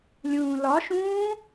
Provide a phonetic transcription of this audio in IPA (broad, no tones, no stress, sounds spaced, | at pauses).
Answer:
lʲ ũː l ɒ ʃ ũː